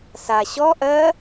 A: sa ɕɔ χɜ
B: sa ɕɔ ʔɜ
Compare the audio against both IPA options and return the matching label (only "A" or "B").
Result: B